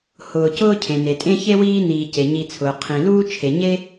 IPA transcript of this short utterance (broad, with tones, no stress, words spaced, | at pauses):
hʊː˨cʊː˥ cʰẽ˩ne˩tʼẽ˦ çe˥wiː˦niː˨ ce˩ɲi˨t͡sʰʊː˩ qʰĩ˩luː˦ t͡ʃʰe˩ ɲe˥